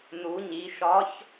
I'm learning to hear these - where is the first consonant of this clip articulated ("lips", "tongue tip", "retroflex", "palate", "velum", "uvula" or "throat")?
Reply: tongue tip